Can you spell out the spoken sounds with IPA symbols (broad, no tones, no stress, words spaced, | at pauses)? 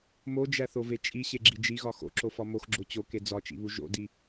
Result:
mod͡ʒæθove t͡ʃʼiɕeɡ͡ǁi d͡ʒiɣɒ xo̰ǁofɒ moxɡ͡ǁo t͡ɕoke d͡zɒt͡ʃḭβu ʒo̰di